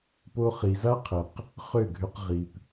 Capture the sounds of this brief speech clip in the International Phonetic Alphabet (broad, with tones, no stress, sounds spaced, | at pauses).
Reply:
p o˧ χ i˨ z a˦ qʰ ɘ˨ q | χ ø˦˨ ɡʱ ø˧ q ʁ i˨ p